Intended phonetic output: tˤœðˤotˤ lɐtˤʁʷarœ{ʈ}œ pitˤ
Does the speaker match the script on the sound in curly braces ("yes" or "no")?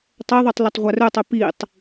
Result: no